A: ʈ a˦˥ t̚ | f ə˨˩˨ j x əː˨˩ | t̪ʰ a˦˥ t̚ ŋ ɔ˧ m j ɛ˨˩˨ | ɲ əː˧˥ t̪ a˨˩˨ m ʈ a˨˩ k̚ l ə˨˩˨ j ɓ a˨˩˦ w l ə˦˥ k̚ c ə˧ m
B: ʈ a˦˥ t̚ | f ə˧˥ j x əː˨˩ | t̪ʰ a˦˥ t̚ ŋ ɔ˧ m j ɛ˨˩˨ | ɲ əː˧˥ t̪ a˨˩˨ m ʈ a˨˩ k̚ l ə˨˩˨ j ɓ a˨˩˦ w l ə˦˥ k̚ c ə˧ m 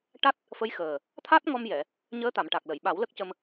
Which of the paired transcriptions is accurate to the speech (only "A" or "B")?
B